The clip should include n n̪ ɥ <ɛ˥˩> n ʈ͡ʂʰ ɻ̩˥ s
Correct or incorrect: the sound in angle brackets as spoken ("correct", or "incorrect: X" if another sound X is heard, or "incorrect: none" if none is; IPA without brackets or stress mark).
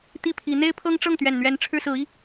incorrect: ɛ˧˥